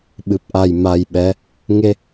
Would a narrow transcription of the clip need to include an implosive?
yes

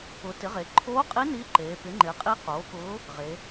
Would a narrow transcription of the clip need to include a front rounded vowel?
no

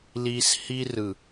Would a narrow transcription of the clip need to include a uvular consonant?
no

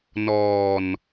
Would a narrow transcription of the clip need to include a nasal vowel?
no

